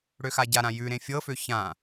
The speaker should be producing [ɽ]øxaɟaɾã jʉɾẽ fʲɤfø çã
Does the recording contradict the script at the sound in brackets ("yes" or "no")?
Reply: no